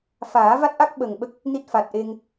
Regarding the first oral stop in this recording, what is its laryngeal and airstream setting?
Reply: plain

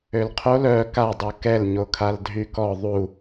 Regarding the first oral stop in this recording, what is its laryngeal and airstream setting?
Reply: aspirated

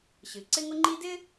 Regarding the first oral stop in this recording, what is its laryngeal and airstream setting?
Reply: click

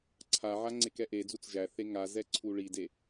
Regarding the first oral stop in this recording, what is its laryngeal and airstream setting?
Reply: click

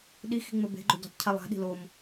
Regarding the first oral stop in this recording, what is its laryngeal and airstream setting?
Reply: implosive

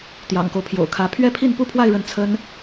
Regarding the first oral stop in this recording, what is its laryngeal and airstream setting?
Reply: plain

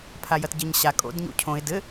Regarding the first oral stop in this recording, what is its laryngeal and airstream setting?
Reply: aspirated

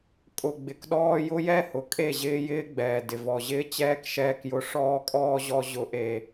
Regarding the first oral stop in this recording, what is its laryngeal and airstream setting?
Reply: ejective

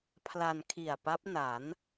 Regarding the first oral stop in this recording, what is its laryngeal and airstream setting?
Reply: aspirated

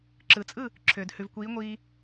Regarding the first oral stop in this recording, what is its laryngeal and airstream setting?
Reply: click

